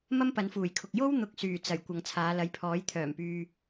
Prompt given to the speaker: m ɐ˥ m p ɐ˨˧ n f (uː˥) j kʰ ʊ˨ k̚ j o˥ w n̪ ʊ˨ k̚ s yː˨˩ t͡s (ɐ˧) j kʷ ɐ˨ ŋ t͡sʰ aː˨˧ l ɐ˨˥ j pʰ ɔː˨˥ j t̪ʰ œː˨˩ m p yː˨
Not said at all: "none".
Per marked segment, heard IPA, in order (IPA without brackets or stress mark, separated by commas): uː˨˩, ɐ˨˩